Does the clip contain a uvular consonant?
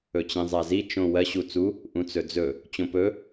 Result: no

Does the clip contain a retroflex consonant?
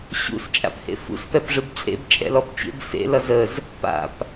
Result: yes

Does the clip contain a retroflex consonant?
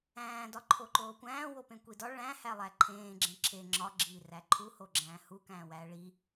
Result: yes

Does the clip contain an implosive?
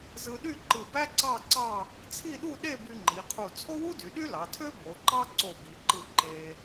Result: yes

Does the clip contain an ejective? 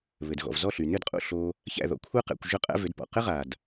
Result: yes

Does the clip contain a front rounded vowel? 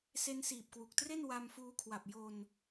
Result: no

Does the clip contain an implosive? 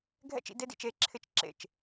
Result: no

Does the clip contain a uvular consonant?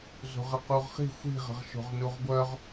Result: yes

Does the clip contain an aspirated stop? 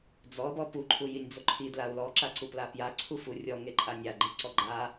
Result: yes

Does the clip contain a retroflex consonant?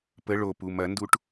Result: yes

